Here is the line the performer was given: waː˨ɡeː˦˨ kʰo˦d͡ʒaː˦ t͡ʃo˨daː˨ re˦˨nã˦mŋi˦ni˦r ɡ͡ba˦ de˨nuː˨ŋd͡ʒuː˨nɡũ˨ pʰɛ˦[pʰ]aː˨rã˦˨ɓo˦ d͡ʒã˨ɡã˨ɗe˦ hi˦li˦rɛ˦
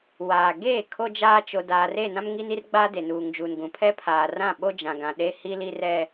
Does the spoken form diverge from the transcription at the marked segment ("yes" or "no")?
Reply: no